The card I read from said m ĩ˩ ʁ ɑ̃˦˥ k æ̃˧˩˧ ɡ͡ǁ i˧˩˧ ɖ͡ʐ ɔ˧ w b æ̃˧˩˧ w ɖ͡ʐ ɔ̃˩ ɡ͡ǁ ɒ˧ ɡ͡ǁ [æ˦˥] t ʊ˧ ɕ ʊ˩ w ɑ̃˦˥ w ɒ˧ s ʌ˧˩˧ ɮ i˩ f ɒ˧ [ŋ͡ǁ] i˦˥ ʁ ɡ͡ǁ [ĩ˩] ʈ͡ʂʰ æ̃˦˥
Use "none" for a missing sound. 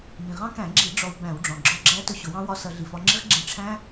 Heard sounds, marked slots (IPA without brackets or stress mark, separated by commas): æ˦˥, ŋ͡ǁ, ĩ˧˩˧